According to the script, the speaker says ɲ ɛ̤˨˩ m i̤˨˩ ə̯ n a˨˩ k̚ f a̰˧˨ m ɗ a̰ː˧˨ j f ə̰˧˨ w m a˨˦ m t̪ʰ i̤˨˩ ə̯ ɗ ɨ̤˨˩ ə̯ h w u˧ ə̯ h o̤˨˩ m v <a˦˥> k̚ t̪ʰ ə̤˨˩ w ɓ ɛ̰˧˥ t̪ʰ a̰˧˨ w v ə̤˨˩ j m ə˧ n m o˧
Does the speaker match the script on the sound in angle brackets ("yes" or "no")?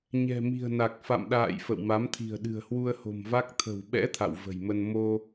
yes